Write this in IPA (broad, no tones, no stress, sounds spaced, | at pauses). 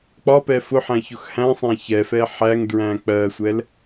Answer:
k͡p ɒ p ɛ f ʊ ħ æ̃ ç ʊ x h æ̃ sˤ æ̃ ç ɛ f ɛ ħ æ ŋ d ɹ æ̃ k͡p ɜ sʷ ɛ l